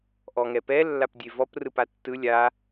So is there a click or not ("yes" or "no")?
no